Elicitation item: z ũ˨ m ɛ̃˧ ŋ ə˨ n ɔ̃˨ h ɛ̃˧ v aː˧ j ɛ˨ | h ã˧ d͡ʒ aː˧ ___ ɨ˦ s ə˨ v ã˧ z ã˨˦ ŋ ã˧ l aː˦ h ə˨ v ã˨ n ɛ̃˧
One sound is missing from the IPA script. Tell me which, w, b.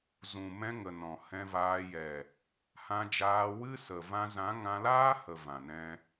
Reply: w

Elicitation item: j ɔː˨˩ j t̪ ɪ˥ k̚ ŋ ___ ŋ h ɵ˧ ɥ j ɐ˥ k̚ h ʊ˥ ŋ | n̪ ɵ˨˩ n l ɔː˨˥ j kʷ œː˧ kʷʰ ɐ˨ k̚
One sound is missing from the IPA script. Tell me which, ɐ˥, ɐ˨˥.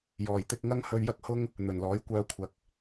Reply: ɐ˥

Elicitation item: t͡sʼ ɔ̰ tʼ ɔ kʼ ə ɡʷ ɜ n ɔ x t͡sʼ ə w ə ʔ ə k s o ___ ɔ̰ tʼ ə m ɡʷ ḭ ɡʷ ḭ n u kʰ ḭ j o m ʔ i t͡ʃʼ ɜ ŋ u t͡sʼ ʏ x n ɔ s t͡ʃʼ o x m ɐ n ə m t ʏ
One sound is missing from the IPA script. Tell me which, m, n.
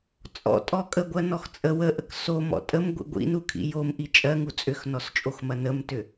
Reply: m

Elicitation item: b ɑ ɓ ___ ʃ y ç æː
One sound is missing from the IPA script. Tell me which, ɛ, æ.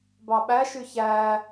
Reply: æ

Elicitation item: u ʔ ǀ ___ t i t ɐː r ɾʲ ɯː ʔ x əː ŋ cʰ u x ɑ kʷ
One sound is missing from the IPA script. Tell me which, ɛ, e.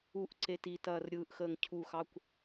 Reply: e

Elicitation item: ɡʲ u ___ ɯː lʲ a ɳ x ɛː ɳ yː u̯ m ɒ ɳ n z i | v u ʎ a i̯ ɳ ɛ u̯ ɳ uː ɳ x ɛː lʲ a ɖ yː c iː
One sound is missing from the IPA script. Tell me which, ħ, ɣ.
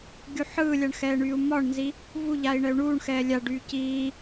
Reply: ħ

